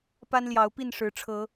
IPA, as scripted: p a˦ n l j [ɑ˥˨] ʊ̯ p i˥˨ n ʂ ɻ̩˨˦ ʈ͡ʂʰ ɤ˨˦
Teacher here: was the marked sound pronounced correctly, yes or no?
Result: no